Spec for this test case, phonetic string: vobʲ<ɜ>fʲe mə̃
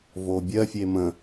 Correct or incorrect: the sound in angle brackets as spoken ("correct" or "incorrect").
correct